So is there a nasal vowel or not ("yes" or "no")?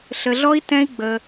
yes